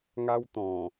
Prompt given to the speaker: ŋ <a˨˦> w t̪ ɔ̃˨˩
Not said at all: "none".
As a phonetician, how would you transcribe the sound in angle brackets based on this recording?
a˦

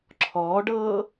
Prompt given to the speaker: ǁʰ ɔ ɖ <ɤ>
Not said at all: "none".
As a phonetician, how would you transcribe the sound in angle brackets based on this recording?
ɤ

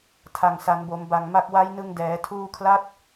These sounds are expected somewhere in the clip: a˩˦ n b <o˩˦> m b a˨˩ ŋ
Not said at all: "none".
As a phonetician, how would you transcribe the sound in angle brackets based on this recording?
o˩˦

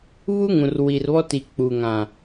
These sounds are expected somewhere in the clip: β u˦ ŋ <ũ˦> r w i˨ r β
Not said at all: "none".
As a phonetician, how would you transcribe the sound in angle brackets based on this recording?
ũ˨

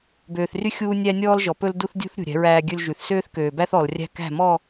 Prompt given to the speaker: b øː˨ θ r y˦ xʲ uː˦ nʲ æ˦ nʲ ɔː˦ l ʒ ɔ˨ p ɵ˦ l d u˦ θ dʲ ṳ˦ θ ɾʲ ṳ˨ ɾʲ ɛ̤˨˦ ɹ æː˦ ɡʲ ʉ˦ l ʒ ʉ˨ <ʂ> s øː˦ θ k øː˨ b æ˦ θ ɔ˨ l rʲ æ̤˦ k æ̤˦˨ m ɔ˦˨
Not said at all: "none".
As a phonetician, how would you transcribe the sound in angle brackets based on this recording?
θ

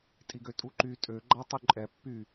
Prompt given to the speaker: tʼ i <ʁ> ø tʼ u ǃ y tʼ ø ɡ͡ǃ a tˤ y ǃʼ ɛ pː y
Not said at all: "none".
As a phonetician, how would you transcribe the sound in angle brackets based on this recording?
ɡ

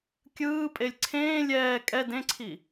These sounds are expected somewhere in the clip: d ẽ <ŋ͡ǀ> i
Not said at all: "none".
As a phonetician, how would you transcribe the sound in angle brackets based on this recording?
ǀʰ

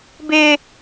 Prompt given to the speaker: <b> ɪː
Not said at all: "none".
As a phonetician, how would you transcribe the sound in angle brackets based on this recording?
b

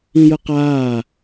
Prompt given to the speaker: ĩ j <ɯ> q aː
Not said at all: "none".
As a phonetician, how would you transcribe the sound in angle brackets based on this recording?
ɯ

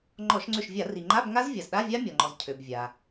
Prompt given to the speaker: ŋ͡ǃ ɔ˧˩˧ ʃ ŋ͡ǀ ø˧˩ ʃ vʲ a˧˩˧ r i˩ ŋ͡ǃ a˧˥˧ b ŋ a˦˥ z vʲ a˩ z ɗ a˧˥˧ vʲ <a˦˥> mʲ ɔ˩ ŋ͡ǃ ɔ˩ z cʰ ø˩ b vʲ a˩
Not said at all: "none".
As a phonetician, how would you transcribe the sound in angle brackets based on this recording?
a˦˥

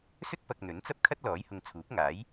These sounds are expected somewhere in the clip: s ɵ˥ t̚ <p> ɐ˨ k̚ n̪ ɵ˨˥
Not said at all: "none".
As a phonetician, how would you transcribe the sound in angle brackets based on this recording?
p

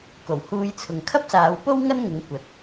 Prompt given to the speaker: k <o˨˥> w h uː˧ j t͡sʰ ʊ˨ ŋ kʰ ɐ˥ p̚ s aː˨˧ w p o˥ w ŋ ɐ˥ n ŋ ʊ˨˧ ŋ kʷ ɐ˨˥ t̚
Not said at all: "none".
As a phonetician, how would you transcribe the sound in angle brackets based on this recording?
o˨˩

